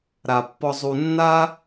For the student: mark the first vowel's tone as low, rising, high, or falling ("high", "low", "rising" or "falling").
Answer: low